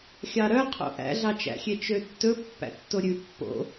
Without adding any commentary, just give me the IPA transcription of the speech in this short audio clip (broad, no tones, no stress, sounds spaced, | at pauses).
xʲ ɑ ɾ œ qʰ o̰ ʔ æ̰ ɮ ɑ t͡ʃ æ̰ xʲ e t͡ʃ ø tː ɵ pː æ̰ tː o ɾʲ ʉ pː o̰